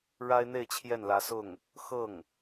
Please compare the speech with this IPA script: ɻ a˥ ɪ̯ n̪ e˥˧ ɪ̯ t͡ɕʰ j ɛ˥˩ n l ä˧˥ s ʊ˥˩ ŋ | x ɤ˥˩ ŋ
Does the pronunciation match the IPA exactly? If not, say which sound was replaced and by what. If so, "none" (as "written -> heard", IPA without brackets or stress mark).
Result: none